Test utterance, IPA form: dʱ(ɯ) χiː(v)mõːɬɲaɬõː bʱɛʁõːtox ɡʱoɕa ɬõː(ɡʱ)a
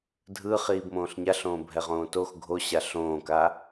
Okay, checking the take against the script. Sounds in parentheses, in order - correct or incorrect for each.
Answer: correct, incorrect: b, incorrect: k

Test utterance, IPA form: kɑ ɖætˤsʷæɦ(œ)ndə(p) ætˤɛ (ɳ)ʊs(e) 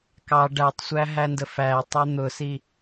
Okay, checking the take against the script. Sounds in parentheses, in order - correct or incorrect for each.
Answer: incorrect: æ, incorrect: f, incorrect: n̪, incorrect: i

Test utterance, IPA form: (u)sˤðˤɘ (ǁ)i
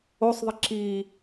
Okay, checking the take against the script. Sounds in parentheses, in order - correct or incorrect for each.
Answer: incorrect: o, correct

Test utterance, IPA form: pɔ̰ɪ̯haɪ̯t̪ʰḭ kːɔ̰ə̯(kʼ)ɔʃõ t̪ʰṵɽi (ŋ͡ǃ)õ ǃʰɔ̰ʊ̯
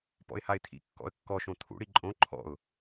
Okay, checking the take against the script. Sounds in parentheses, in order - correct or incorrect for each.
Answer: incorrect: kː, incorrect: ǃʼ

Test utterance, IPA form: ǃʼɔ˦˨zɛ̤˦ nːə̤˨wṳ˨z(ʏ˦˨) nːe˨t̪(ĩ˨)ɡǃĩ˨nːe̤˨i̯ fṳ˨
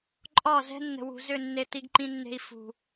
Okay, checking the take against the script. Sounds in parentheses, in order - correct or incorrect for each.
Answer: correct, incorrect: i˨

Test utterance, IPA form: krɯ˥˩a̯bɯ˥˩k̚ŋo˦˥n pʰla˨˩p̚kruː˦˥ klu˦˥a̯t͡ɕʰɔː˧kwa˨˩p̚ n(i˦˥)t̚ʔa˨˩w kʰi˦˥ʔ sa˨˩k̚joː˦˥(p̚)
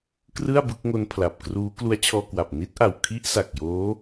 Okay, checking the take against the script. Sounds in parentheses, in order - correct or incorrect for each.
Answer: correct, incorrect: none

